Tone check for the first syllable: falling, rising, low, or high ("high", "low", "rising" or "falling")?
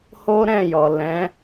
high